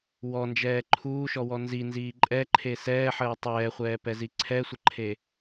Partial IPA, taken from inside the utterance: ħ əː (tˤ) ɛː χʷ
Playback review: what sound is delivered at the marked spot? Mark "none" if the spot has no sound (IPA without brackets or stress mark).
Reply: tˤ